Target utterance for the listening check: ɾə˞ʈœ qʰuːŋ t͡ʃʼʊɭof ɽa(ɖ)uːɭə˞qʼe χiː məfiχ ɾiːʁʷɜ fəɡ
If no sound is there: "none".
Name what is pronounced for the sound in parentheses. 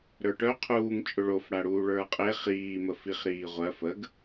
ɽ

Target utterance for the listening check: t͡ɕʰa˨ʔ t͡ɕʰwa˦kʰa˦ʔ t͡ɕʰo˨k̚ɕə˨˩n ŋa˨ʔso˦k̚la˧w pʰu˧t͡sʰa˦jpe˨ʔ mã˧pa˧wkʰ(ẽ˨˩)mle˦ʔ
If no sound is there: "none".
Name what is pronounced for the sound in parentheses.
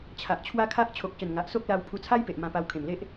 ẽ˨˩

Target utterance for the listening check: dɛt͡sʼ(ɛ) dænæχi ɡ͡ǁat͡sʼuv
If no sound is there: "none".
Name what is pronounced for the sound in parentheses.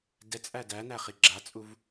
æ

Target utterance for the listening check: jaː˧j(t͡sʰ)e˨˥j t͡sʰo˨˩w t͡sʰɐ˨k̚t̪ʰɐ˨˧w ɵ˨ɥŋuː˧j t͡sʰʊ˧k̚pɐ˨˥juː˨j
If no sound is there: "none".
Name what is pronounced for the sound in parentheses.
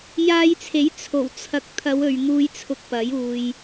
t͡sʰ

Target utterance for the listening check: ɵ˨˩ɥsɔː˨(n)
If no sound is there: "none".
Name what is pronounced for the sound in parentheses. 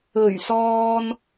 n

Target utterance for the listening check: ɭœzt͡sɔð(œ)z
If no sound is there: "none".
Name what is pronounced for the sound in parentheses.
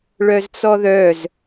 œ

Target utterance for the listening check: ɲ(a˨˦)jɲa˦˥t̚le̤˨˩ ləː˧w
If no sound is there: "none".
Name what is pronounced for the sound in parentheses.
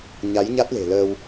a˨˦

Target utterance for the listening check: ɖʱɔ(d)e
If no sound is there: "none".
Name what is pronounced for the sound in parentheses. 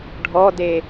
d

